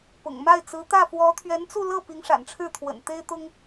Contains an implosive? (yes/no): no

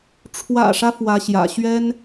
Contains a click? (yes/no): no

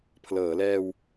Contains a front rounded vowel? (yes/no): no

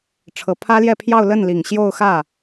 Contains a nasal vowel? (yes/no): no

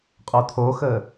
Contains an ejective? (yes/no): yes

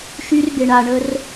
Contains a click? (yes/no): no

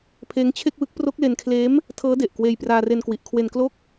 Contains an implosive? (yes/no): no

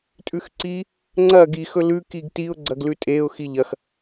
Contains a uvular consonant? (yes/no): no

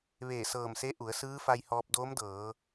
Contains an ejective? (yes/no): no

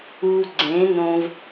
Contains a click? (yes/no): yes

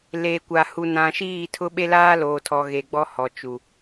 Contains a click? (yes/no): no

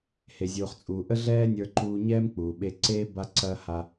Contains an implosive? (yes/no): yes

